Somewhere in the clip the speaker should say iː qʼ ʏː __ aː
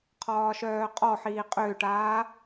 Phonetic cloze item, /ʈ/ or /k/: ʈ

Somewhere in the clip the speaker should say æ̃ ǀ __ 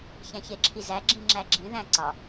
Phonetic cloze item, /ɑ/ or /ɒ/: ɒ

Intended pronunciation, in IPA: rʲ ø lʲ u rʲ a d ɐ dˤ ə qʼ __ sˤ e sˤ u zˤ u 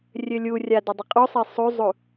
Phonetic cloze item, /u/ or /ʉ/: u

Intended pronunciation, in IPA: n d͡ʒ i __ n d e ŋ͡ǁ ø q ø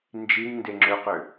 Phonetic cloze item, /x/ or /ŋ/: ŋ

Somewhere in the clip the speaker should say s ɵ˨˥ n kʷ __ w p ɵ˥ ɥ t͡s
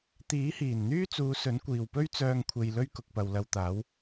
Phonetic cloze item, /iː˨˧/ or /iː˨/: iː˨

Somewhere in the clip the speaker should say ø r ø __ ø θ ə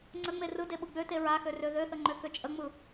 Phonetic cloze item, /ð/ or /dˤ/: ð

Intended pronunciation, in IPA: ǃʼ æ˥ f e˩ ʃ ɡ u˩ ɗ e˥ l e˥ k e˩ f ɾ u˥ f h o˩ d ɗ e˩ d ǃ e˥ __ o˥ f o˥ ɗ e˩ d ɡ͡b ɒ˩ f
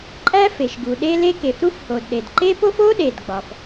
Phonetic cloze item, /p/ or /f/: p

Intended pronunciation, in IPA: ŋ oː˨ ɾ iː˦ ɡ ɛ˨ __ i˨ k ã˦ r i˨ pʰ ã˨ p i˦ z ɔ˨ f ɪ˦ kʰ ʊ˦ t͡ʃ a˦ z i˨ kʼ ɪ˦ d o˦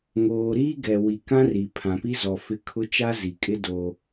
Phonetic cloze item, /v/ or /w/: w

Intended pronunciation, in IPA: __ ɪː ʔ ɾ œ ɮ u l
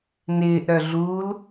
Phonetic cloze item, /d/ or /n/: n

